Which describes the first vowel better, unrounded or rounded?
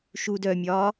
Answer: rounded